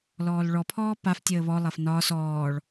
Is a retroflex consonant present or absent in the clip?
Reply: present